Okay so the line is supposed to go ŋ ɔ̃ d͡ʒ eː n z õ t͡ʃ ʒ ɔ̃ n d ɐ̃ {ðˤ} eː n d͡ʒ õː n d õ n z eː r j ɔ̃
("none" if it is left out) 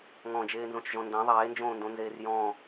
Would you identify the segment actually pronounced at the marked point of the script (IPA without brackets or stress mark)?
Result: ðˤ